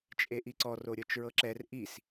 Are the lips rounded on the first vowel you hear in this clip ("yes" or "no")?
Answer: no